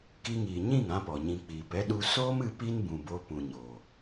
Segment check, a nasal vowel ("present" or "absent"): present